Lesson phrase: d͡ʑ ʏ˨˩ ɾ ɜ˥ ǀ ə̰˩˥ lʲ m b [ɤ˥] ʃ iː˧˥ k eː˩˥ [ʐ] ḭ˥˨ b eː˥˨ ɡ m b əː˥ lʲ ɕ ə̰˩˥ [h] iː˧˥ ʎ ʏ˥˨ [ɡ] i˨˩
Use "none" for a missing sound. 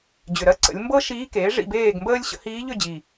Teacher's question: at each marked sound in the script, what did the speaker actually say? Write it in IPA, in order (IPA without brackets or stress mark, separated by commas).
ɤ˥, ʐ, h, d͡ʑ